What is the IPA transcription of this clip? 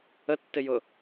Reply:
ə tː ɪ j ʊ

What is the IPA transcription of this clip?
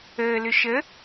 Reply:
əː l ʏ ʃ ə

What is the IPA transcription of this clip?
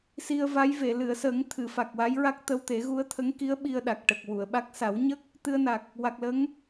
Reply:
s i˧ ə̯ v a˧˥ j v e˨˩˨ l ɨ˨˩˨ ə̯ s ə˨˩˦ ŋ t̪ʰ ɨ˨˩˨ f a˨˩ k̚ w a˧˥ j ɹ a˦˥ k̚ t̪ ə˧ w t̪ e˨˩˦ ɣ u˧˥ ə̯ t̪ʰ ə˧˥ ŋ k i˧˥ ə̯ ɓ i˧ ə̯ ɗ a˨˩ k̚ ʈ ə˨˩ k̚ w u˨˩˨ ə̯ ɓ a˦˥ k̚ s a˨˩˦ w ɲ ə˦˥ k̚ | t̪ ɨ˧ ə̯ n a˨˩ k̚ | w a˨˩ k̚ l ə˧˥ ŋ

